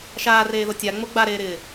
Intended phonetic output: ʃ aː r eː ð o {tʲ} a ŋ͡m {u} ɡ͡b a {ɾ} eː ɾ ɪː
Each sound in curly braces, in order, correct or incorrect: correct, incorrect, correct

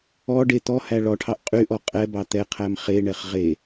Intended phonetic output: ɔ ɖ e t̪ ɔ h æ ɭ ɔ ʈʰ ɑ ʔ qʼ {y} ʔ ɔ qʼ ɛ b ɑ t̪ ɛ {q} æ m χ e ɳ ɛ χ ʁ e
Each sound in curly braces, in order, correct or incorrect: correct, incorrect

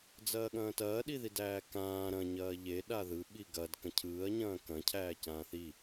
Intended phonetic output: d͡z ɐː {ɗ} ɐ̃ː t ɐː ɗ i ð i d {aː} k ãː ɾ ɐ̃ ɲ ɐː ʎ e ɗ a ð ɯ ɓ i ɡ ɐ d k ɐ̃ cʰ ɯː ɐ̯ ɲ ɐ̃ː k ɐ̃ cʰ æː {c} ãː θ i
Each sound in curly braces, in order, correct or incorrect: incorrect, incorrect, correct

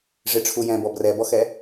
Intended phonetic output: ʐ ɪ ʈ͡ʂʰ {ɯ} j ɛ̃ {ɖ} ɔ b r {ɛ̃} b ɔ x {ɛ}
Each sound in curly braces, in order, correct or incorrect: incorrect, incorrect, incorrect, correct

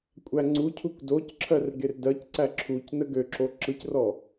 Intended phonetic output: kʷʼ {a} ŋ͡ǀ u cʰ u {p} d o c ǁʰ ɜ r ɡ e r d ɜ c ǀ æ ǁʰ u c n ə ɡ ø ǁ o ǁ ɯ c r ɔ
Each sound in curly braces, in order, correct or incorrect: incorrect, incorrect

